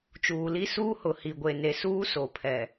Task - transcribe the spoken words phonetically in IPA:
t͡ʃ uː˨ l i˦ s uː˦ h ʊ˨ h i˨ ɡʷ e˨ n e˨ s uː˦ s o˨ pʰ ɛ˨

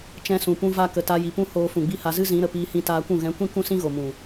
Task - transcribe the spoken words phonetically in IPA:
t͡ʃ ɛ̃˧ s ũ˨ p ũ˧ v a˧ k ə˨ t a˧ j i˨ p ũ˦ h oː˧ f ũ˨ ɡ͡b i˦ h a˧ z ɨ˦ z ĩ˨˦ ɾ ə˨ p iː˧ h ĩ˧ t aː˧ kʷ ũ˦˨ ɣ ɛ̃˨˦ kʷ ĩ˦ k ũ˦ s ĩ˦ ɣ o˨ m ũ˨

